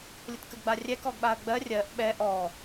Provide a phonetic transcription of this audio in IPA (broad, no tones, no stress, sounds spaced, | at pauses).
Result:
lʲ ə t k ə ɡ ɡ͡b a rʲ ɛ k ɔ ɡ ɓ a ə̯ ɡ͡b ɜ rʲ ɜ ʔ ɓ ɛ ʔ ɔ